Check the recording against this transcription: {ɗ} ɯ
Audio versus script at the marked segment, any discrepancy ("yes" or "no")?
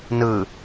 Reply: yes